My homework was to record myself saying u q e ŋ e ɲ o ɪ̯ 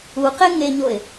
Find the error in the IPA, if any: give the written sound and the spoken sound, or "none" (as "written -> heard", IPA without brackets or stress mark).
none